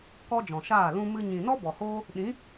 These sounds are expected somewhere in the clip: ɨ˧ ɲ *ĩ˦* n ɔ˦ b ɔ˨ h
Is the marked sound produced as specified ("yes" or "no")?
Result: no